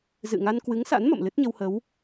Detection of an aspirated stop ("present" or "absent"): absent